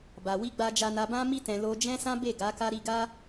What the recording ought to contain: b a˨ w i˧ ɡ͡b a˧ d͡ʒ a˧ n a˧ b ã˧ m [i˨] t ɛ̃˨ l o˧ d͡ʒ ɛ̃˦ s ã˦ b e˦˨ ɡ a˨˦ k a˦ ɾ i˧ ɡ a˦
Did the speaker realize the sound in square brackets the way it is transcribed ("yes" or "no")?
no